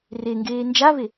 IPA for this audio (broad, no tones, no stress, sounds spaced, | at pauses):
r e ŋ ɡ eː n d͡ʒ a v e